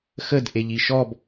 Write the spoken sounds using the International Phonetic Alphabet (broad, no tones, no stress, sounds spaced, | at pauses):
x ə d ʔ e ʎ i ʃ ɔ b